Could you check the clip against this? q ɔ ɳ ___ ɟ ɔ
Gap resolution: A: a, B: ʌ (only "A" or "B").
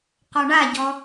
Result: A